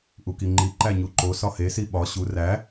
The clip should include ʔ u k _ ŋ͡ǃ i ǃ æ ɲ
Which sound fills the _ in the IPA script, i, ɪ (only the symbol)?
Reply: i